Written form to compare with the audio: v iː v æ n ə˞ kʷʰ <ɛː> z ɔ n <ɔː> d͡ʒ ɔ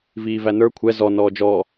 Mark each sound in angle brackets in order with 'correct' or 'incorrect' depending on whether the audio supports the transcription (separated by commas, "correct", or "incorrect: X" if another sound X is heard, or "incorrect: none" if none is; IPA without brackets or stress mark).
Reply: incorrect: ɛ, correct